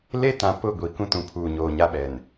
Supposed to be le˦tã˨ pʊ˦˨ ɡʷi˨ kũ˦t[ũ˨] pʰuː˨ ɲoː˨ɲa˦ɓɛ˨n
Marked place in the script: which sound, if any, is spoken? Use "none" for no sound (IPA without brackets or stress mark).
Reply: ũ˨